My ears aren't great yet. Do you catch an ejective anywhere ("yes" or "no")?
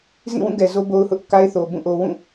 no